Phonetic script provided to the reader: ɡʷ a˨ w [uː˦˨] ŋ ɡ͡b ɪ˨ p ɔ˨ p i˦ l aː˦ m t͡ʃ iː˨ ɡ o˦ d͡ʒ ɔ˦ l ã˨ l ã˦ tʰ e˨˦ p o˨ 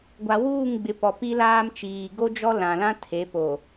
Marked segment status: correct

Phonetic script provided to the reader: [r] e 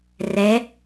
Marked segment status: correct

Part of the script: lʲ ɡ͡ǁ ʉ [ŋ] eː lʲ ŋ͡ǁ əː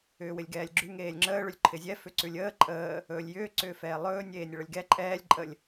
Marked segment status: correct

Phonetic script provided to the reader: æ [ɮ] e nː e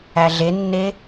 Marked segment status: correct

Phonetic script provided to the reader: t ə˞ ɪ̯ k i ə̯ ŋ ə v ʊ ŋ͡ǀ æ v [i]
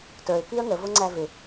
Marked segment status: incorrect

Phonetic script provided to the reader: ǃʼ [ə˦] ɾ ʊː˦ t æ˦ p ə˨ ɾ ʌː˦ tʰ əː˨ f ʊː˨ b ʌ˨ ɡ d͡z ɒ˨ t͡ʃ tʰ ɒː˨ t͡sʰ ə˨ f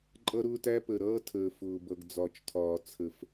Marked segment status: incorrect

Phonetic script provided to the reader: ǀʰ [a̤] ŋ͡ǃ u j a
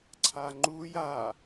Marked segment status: incorrect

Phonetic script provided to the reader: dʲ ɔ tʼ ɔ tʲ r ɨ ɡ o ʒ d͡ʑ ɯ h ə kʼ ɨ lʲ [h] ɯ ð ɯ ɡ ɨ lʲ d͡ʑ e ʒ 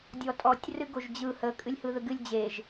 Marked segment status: correct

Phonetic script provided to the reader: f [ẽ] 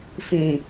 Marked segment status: incorrect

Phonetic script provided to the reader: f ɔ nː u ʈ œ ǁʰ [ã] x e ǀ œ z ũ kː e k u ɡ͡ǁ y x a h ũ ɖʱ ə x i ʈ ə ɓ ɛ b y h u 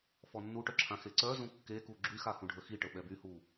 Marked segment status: correct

